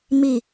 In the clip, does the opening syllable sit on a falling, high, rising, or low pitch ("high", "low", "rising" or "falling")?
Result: low